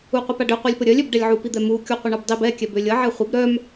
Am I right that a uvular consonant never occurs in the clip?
no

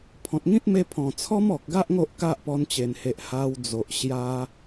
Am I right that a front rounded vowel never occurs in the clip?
yes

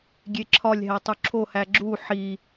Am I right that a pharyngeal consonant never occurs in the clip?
no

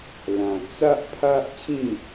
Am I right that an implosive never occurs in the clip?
yes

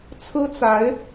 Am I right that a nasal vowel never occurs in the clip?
yes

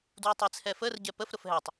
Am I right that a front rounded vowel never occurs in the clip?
no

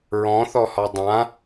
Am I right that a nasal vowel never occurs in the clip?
no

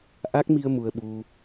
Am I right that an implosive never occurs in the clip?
no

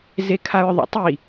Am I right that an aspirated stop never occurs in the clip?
no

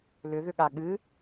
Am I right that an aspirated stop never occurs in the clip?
yes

